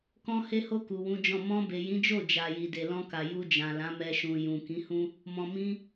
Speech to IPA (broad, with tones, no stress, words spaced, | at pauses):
kɔ̃˦ he˧ho˧ ku˨wũ˨˦d͡ʒɔ̃˦˨ mɔ̃˧be˨jĩ˨˦d͡ʒo˦˨ d͡ʒa˨ji˨ de˨lɔ̃˧ka˨ ju˧d͡ʒã˨lã˨˦ mɛ˦ʃũ˧ jũ˨ kĩ˨˦hũ˦ | mɔ̃˨ mĩ˧